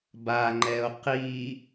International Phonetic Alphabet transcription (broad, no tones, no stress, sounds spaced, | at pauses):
b a ŋ͡ǃ ɛ o̯ q i